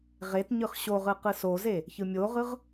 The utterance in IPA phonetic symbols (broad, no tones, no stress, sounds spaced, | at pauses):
ʁ e t ɲ ɯ χ ɕ o ʁ ɯ q ɯ s o z e | ç ɯ mʲ o ʁ ɯ ʁ